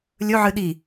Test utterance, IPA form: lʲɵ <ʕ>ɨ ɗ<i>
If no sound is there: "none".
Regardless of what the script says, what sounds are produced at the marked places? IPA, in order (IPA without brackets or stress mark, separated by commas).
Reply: ʕ, i